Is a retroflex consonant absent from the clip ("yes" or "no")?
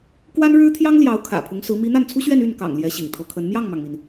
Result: no